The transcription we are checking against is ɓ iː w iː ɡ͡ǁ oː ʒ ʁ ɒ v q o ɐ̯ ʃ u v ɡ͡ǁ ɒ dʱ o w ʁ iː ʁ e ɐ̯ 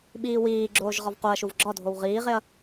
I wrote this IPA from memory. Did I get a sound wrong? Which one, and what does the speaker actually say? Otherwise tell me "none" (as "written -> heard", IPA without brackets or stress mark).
none